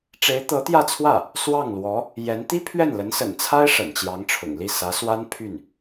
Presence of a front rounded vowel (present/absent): present